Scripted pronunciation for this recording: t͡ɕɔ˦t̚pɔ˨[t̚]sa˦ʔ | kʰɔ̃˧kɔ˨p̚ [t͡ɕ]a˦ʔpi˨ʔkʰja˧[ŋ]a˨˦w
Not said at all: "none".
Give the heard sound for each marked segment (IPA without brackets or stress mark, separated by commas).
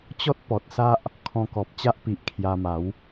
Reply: t̚, t͡ɕ, m